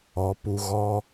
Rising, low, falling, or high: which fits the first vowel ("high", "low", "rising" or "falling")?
rising